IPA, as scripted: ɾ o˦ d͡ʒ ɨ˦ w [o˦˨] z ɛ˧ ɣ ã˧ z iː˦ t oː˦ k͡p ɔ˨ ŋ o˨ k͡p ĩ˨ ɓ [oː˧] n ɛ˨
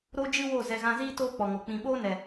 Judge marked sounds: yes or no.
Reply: yes, no

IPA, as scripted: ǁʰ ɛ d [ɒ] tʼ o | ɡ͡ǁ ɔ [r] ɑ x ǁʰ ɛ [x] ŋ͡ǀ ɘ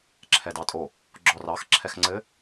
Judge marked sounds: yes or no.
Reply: no, yes, yes

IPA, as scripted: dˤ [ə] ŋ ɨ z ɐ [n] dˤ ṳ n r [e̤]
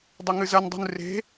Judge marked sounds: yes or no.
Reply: no, yes, yes

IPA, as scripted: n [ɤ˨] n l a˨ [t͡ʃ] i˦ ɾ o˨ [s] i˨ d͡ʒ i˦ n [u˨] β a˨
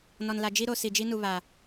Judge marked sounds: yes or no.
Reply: no, no, yes, yes

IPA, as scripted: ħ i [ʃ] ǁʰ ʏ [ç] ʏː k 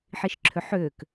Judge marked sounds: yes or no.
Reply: yes, no

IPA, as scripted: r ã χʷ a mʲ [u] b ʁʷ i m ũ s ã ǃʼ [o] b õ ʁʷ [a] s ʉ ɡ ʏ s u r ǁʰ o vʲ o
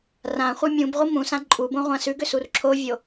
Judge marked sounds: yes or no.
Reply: no, no, no

